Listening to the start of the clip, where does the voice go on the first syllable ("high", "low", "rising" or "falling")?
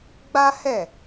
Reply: high